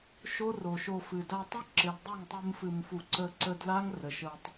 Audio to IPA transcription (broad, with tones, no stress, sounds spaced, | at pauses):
ʃ o˦ r o˨ ʃ o˧ f ɨ˨ d a˧ tˤ ɨ˦ ǁ ɪ˨ l dˤ o˦˨ ŋ tˤ ɨ˧ m f ɨ˨ m f u˨ ǀ ə˧ ǀ ə˧ d l a˦ ŋ r ə˨ ʃ ə˧ tˤ